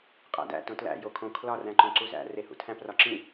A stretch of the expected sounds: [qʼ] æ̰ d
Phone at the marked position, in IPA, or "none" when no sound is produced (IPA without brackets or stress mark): qʼ